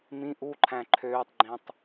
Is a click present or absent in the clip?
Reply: present